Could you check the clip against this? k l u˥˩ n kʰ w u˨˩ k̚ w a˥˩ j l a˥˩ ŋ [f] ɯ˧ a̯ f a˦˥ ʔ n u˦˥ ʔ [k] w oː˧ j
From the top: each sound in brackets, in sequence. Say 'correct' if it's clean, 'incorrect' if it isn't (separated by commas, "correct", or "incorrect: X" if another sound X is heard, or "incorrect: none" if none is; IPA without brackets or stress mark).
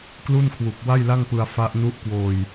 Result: incorrect: p, correct